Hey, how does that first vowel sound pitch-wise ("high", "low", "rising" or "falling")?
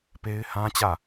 high